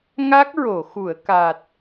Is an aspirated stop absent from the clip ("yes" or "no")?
yes